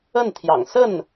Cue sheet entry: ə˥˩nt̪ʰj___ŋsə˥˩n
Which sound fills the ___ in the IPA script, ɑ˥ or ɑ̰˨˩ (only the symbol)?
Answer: ɑ̰˨˩